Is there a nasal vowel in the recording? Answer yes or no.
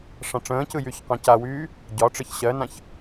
yes